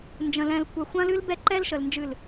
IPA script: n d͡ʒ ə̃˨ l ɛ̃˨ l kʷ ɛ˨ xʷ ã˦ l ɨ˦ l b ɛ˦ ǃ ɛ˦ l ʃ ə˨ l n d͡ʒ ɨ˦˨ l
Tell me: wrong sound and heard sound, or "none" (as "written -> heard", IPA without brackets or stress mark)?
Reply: none